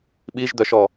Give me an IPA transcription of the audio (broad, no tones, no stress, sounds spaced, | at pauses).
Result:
ɓ i ʒ d̪ œ ʃ ɔ